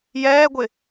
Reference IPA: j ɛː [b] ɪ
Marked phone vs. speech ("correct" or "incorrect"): incorrect